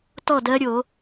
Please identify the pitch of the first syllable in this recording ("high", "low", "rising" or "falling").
falling